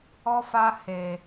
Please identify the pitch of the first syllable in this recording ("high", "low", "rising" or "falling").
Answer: high